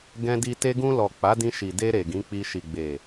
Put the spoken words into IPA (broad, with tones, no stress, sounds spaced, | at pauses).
ɡ ɛ̃˧ d i˧ t e˧ ɡ ũ˧ l ɔ˨ k͡p a˨˦ d ĩ˧ ʃ i˨ d e˧ ɾ e˨ ɡ ĩ˨˦ k͡p i˧ ʃ i˨ ɡ͡b e˨